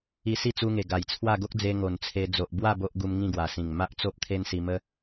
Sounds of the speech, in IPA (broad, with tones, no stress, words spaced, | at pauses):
i˧si˥˧t͡su˧ŋe˨˩ ɡa˨˩jt͡sʰwa˥˧ ɡo˦k̚d͡ze˧ ŋo˨˩nt͡sʰe˧ d͡zo˨ʔbwa˥˧ bo˦ʔɡu˧m ŋĩ˥˧ɡwa˨˩sĩ˨˩ŋ ma˦ʔt͡so˦p̚ t̪ʰe˦nsi˧mə˦